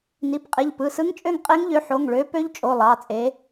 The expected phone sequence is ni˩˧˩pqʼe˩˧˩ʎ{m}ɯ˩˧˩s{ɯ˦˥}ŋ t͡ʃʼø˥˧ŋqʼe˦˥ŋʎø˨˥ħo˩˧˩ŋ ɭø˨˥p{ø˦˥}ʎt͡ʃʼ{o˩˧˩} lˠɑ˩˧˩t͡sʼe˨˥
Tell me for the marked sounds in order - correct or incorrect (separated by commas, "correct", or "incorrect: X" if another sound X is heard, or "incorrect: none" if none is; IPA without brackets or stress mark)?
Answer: incorrect: p, correct, correct, correct